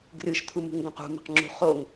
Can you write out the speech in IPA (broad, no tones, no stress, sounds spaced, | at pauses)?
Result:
ɡ r ɨ ʃ t̪ʰ u m ṳ ŋ ɡ õ q ṳ m ɛ̤ q ŋ͡ǁ ṳ χ o ŋ